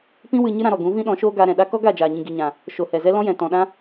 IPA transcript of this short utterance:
p ĩ˦ w ɨ˧ ɲ ɨ˦ ɾ ã˧ ɾ ɔ˨ ɡ ũ˨˦ v ĩ˦ ɗ ɔ̃˨˦ ʃ oː˦ ɡ aː˧ ɾ ɛ̃˨ ɗ a˦ k ɔ˦ ɡ a˦˨ d͡ʒ aː˨ ɲ ĩ˨ ɡ i˨ ɲ ã˨ | ʃ o˨ h ɛ˨ z ɛ˦ l ɔ̃˦ j ɛ̃˨ t ɔ̃˨ ɗ ã˦

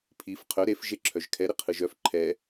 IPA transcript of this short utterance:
pʰ i f qʰ œ ɾ e f ʒ e ǁʰ œ ʒ kʰ ɛ ɾ ɪ qʰ ɯ ʒ œ f ǃʰ ɛ

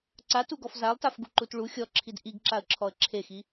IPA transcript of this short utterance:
ǀ a t u ɡ ɔ f z a lˠ t a f ɡ u ǃ u t ɭ u xʲ ɔ ǁʰ i d ʔ i ɡ ǁ a ə̯ ǁʰ ɔ ə̯ ǁʰ e x i

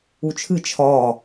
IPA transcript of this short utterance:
u t͡ʃʰ ɨ t͡ʃʰ ɒː

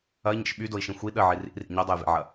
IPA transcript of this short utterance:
ɐ i̯ ɲ ḛ ʃ ɓ y d o i̯ ʃ ĩ xʷ i ɗ ə ʕ i r ḭ r ḭ ɲ ø dˤ o j v ḛ ʕ ɐ

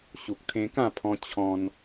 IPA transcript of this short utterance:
ɕ u˨ k̚ t̪ʰ ẽ˧ k ã˥˧ pʰ ɔ̃˧ t͡ɕʰ ɔ̃˧ n

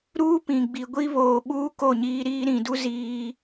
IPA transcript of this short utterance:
ɾ uː˦ p ĩ˨ ɡ͡b i˨ ɡʷ i˦ β oː˨ ɓ uː˦ k o˦˨ ɲ iː˦ ɾ iː˦ ɾ ĩ˨ d u˦ z iː˦

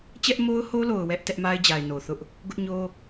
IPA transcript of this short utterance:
t͡ɕ ɛ˦ ʔ m o˦ ʊ̯ h o˦ l o˨ ʊ̯ w ɛ˦ ʔ t ɛ˦ ʔ m a˦ ɪ̯ d͡ʑ a˨ ɪ̯ n o˨ θ ʊ˦ ʔ | ɡ ʊ˦ ʔ ɲ o˦

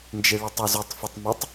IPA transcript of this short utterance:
n d͡ʒ e ɭ ɛ tˤ ɔ z u tˤ f ɪ tˤ m ʊ tˤ

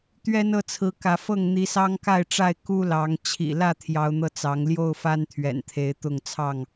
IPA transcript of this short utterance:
t̪ ɥ ɛ˦ n ɤ˥˨ t͡sʰ ɹ̩˨˦ k ä˨˦ f ɤ˥˨ ŋ n̪ i˨˦ s ɑ˦ ŋ k a˥˨ ɪ̯ ʈ͡ʂ a˥˨ ɪ̯ k u˦ l ɑ˨˦ ŋ t͡ɕʰ ḭ˨˩ l ä˥˨ t̪ʰ j ɑ˨˦ ʊ̯ n̪ ɤ˧ t͡s ɑ˨˦ ŋ l j o˥˨ ʊ̯ f a˦ n t̪ʰ ɥ ɛ̰˨˩ n t̪ʰ e˨˦ ɪ̯ t̪ ʊ˥˨ ŋ t͡sʰ ɑ˥˨ ŋ

